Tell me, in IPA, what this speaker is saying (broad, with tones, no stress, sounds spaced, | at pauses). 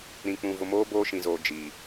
ɾ ĩ˨ k͡p ũ˨ v ʊ˨ m oː˦ b oː˦ ʃ ĩ˨ z oː˨ d͡ʒ iː˨